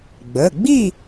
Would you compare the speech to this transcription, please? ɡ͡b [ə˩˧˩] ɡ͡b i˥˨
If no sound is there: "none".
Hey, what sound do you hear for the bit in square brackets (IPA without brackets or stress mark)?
ə˩˧˩